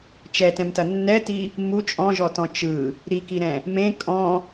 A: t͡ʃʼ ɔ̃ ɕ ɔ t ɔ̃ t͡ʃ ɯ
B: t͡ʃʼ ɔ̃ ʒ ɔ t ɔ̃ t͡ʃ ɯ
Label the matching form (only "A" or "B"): B